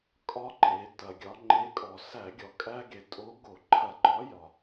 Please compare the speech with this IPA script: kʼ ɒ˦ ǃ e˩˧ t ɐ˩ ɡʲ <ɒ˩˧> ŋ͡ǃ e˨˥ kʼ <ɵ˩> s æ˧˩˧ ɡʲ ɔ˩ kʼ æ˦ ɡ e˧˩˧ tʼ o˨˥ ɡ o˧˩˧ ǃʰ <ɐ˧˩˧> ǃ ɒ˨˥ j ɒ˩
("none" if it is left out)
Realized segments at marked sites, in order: ɒ˩˧, ɔ˩, ɐ˧˩˧

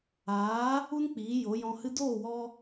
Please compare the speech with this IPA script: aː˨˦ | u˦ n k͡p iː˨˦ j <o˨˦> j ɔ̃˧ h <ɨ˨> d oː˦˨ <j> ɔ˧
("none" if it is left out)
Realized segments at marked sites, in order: o˨˦, ɨ˧, w

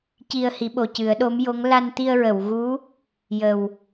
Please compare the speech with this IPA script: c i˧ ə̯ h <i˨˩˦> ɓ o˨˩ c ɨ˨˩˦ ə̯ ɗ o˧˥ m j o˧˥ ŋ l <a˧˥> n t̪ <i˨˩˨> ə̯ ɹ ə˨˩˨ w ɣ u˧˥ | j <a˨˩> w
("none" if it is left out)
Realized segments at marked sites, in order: i˨˩˦, a˧, i˧, ə˨˩

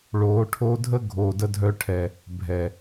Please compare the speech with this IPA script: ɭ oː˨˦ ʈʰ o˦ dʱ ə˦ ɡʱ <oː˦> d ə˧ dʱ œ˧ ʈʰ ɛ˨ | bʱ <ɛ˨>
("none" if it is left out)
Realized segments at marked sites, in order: oː˨, ɛ˨

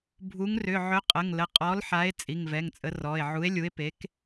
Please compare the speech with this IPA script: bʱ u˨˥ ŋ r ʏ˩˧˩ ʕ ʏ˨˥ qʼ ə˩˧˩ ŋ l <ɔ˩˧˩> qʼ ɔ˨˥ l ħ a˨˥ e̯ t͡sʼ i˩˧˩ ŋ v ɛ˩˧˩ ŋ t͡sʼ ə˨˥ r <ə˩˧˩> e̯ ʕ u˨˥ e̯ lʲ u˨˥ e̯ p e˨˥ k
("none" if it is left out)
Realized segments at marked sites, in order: ə˩˧˩, ɔ˩˧˩

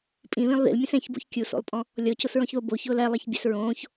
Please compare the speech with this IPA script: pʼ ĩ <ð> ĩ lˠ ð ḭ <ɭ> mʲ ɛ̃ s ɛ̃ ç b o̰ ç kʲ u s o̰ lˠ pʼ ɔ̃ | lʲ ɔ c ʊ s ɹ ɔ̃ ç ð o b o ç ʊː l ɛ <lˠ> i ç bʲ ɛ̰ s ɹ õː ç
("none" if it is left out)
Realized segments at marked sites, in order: ð, l, lˠ

